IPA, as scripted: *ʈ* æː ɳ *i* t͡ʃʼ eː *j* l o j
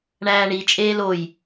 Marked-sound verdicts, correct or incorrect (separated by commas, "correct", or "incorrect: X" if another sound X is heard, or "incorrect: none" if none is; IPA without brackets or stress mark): incorrect: ɳ, correct, incorrect: none